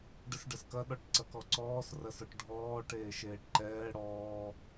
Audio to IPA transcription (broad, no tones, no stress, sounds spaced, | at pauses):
ɖ ə s ɖ ɐ s k ɐ ɗ ɔ ʈ ǀ ɐ k ɔ ǀ ɔː s r ɐ s ɔ ʈ ɖʱ ɔː ʈ eː ʃ eː ʈ ǃ ɛː ɽ ɔː